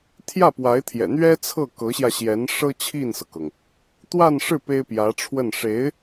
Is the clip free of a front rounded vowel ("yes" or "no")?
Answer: yes